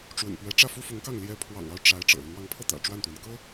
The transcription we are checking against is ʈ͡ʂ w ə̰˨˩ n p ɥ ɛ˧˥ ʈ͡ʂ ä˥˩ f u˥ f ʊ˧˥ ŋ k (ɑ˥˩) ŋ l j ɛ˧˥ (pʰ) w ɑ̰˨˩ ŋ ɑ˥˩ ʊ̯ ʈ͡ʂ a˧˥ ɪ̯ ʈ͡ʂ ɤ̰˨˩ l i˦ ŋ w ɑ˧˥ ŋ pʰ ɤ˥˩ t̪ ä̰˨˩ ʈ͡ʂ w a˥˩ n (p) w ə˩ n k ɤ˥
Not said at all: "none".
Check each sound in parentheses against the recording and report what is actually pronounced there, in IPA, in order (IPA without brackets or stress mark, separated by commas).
ɑ˥˩, pʰ, t̪